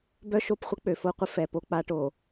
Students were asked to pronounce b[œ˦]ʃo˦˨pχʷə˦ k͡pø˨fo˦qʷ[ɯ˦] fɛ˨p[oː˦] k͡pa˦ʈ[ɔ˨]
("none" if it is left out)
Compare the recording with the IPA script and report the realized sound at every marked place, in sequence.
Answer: œ˦, ə˦, o˦, o˨

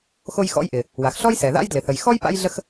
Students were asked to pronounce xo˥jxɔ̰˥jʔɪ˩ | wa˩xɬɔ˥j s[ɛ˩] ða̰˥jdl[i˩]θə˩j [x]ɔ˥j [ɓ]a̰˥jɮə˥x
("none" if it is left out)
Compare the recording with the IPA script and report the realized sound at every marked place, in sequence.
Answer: ɛ˩, ɪ˩, x, p

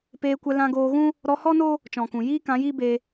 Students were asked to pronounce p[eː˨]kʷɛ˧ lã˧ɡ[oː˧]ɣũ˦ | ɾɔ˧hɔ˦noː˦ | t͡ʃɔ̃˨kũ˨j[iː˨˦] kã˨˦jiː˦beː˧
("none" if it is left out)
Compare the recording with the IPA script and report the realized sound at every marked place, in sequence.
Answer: eː˧, oː˧, iː˦

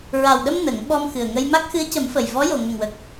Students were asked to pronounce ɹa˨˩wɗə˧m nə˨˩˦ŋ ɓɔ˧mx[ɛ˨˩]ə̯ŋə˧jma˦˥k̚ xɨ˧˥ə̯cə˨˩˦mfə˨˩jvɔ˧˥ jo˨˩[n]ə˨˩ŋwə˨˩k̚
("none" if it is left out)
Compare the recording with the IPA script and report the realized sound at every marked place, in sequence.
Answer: ɨ˨˩, ŋ

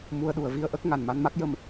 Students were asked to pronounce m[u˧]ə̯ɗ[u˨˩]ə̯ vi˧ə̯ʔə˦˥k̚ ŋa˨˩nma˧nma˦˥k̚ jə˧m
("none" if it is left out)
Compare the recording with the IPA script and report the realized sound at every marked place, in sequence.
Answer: u˧, u˨˩

